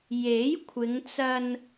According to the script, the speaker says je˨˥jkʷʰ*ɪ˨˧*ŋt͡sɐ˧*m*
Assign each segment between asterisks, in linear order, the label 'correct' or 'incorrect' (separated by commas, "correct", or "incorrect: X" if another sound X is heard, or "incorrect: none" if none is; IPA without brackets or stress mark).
correct, incorrect: n